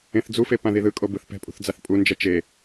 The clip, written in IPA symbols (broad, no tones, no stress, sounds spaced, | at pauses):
ẽ θ d͡z u f e p ã ð i ð ɯ kʼ o b ɯ θ p ɛ̤ pʼ ṳ θ d͡z a θ pʼ u n d͡ʒ ɛ t͡ʃ e